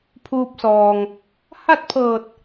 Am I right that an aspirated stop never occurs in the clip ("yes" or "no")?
no